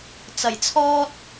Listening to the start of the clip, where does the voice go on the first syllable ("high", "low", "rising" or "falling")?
low